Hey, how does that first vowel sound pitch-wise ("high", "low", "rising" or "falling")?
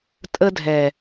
high